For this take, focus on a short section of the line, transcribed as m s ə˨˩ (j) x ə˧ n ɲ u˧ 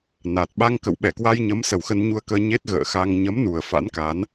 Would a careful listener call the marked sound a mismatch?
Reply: yes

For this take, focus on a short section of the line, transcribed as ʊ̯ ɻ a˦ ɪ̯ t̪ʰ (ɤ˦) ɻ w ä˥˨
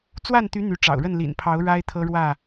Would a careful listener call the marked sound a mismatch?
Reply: no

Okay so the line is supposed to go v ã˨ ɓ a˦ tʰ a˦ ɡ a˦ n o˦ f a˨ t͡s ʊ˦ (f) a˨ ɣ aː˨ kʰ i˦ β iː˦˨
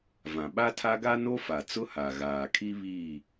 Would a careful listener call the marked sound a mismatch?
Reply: yes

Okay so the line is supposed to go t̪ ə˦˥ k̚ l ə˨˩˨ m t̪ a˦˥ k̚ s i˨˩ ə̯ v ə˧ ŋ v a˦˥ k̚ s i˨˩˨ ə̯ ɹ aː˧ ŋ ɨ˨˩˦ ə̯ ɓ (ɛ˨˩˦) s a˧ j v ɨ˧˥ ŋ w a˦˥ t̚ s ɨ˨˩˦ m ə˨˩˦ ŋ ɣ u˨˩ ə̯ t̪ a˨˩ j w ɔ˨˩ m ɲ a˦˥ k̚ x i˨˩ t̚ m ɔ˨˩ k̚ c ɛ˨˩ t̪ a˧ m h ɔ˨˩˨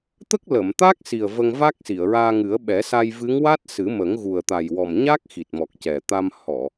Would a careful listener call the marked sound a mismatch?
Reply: no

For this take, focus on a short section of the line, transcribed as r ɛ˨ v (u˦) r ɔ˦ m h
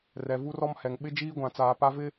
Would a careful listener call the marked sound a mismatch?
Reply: no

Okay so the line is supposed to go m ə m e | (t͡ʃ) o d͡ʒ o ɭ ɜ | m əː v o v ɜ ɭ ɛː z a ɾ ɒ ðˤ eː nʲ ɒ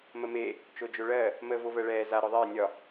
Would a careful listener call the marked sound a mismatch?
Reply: no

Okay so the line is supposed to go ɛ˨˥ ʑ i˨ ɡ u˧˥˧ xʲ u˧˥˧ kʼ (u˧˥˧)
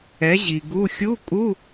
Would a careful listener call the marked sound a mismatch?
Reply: no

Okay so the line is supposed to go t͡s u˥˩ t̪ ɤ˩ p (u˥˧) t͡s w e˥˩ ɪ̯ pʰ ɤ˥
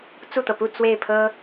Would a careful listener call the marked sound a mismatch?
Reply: no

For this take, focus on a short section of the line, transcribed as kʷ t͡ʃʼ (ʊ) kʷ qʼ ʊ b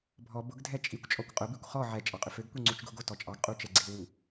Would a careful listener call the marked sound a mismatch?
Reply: yes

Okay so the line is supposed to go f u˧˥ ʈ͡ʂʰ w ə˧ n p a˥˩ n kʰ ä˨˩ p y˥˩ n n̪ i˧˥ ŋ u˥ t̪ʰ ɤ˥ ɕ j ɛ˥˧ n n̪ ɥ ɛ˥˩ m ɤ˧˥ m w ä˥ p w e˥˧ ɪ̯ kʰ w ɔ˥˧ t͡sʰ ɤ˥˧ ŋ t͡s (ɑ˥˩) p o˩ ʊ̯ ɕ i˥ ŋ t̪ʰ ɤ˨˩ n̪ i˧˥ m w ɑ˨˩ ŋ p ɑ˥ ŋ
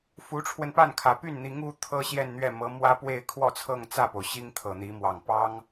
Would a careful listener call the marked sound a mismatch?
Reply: yes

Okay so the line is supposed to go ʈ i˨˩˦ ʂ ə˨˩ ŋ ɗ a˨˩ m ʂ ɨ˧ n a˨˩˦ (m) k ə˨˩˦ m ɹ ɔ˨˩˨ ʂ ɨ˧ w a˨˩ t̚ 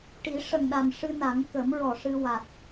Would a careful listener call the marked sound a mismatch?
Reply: yes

